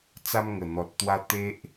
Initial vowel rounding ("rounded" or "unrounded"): unrounded